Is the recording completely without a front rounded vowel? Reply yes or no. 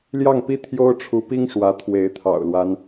yes